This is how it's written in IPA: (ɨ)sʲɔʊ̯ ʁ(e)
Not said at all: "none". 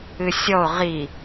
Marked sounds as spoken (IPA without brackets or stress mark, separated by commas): ɨ, i